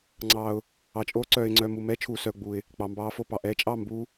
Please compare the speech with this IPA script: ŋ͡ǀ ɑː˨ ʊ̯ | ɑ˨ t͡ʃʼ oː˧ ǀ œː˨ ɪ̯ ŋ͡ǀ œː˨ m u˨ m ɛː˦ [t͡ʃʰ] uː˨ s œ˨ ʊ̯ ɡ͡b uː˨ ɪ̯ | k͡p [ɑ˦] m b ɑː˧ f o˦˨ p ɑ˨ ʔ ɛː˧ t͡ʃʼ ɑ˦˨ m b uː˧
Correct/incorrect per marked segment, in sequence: correct, incorrect

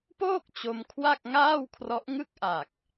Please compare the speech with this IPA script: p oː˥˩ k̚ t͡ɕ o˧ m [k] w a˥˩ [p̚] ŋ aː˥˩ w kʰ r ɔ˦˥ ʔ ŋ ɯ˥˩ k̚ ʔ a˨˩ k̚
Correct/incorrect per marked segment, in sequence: incorrect, incorrect

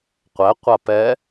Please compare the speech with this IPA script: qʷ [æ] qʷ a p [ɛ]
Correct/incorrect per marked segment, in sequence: correct, correct

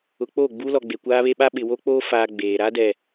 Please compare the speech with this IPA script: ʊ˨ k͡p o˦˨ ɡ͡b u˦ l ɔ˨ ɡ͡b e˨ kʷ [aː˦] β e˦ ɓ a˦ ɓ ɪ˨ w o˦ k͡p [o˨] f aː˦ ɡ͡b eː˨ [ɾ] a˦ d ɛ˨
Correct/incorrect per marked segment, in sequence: correct, incorrect, correct

